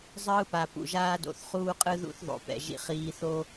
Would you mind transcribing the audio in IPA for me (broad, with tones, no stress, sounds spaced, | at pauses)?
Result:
zˤ ɯː˦ p a˨ p ṵ˨ ʒ aː˦ d o̰˨ θ χ uː˦ qʼ ɯ˦ ð ṵ˦ θ ðˤ o̰˨ p ɛ̰˨ ʒ ḭ˧ χ iː˧ θ o˦